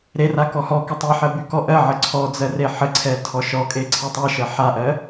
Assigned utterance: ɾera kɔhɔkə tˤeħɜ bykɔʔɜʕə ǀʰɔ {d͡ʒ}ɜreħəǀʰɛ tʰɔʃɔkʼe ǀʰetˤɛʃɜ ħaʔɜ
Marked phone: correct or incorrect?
incorrect: d͡z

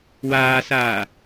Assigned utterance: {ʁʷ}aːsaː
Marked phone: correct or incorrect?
incorrect: w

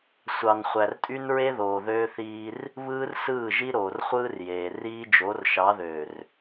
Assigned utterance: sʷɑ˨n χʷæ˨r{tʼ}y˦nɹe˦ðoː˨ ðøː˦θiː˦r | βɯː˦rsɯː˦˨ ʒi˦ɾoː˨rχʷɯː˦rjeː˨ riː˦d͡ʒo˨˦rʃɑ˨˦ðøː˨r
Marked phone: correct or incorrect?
correct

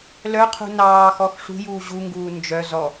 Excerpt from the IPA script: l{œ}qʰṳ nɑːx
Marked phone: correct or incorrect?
correct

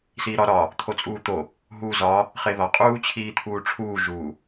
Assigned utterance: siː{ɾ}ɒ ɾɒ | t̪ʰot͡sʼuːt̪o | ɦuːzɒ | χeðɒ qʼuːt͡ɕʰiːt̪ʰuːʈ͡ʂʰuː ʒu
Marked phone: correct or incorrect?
correct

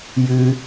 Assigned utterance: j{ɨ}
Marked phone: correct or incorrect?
correct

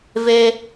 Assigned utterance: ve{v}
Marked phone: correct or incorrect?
incorrect: none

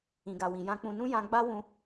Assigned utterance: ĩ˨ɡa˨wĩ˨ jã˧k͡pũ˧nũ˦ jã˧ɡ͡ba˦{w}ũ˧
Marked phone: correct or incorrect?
correct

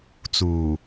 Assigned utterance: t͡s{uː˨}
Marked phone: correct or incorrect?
correct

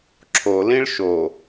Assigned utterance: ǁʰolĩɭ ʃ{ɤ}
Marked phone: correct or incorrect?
incorrect: o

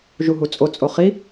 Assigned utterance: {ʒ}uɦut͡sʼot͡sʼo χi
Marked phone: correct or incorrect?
correct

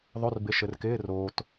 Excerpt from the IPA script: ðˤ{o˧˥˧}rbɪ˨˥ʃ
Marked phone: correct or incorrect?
correct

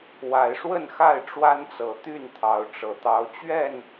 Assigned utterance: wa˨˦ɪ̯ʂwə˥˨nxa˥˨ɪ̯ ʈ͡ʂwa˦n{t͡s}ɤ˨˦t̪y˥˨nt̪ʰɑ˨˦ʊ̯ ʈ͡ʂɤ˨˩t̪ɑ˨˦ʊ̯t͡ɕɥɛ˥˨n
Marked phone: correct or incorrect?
correct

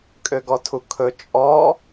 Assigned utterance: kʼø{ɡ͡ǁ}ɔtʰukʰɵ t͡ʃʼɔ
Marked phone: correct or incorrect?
incorrect: ɡ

